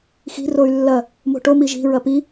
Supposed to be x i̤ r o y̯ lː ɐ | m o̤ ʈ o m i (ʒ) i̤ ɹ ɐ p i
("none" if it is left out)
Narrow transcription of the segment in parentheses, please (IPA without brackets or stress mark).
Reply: ʒ